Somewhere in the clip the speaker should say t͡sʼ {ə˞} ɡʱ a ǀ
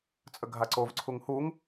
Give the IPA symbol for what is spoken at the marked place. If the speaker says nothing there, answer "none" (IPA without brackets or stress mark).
ə